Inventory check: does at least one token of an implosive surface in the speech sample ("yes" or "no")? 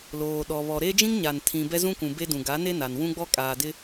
yes